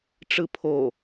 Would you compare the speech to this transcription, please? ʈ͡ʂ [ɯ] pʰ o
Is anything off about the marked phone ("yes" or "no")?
no